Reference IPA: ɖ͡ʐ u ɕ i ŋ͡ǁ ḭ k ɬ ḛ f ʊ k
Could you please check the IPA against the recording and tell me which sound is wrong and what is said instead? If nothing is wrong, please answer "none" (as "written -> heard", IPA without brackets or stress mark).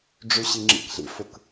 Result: ḛ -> ḭ